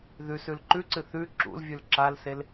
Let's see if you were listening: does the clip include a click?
yes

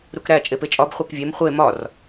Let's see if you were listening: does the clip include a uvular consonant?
yes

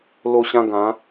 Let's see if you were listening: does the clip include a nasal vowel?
yes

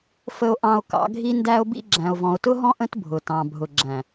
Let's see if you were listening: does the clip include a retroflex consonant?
no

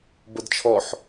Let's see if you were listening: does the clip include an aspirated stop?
yes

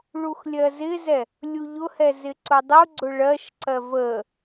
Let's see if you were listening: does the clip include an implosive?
no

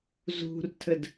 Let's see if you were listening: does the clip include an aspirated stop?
yes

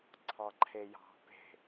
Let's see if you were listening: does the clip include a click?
yes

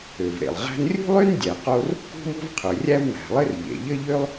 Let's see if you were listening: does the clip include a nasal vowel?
no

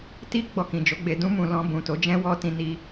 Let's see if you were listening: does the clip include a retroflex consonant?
no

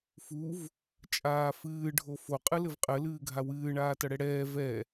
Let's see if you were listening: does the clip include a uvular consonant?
yes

